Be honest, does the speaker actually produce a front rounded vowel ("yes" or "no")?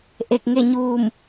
no